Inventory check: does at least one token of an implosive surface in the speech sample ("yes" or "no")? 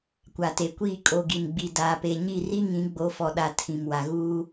yes